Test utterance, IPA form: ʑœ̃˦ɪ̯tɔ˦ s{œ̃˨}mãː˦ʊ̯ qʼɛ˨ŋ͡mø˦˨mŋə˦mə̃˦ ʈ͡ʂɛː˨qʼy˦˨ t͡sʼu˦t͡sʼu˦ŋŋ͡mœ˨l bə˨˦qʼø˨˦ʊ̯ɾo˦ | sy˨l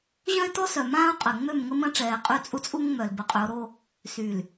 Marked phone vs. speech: incorrect: œ˨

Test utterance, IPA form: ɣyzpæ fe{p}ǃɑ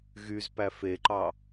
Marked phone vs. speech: incorrect: none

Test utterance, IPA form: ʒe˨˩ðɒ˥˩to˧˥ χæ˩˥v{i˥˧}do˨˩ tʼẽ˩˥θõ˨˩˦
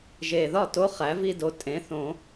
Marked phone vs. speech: correct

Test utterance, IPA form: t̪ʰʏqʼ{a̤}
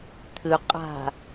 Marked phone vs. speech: correct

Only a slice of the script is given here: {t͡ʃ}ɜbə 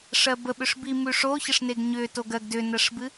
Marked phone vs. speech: incorrect: ʂ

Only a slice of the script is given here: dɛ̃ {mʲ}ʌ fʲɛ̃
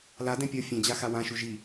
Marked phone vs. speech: incorrect: pʲ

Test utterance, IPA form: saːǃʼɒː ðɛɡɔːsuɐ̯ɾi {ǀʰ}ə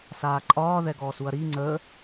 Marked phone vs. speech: incorrect: ŋ͡ǀ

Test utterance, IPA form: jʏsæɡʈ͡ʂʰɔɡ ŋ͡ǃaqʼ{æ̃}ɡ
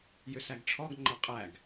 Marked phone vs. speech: incorrect: æ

